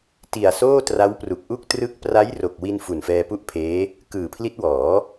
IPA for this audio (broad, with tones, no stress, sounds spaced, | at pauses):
t i˨˩ a̯ s oː˥˩ t r a˦˥ w p r u˨˩ k̚ ʔ u˥˩ k̚ t r ɯ˥˩ k̚ p r a˦˥ j r o˨˩ k̚ w i˧ n f u˨˩ n f ɛː˧ p u˥˩ ʔ pʰ eː˦˥ | k ɯː˨˩ pʰ l i˦˥ t̚ w ɔː˩˦